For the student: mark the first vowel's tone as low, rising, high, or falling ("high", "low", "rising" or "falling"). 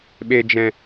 low